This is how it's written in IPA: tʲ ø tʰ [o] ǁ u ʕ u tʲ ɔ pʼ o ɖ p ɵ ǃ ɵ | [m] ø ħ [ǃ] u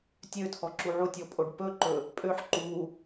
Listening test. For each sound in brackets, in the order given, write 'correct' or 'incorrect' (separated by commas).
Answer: incorrect, incorrect, correct